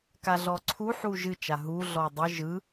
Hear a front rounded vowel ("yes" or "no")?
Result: no